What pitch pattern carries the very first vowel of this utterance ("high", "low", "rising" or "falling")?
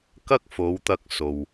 high